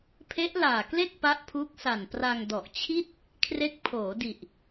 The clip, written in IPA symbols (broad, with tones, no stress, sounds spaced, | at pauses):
pʰ e˦˥ ʔ l aː˨˩ k l e˥˩ k̚ p a˦˥ ʔ pʰ uː˦˥ k̚ s a˨˩ n p r a˧ ŋ d ɔ˨˩ ʔ t͡ɕʰ i˥˩ t̚ | kʰ r e˦˥ k̚ pʰ oː˩˦ d i˨˩ ʔ